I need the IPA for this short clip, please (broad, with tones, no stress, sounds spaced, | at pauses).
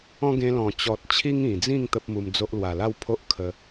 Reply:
ɔ̃˦ ɡ ẽ˧ l ɔ̃˨˩ t͡ɕ ɔ˨ t̚ t͡ɕʰ i˦ ŋ ĩ˨˩ d͡z ĩ˥˧ ŋ t̪ ə˦ p̚ m u˧ m d͡z o˦ ʔ l w a˨˩ l a˥˧ w pʰ o˦ ʔ kʰ ə˧